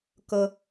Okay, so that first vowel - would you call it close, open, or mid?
mid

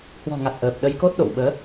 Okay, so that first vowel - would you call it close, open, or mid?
mid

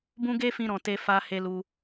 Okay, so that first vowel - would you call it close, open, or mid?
close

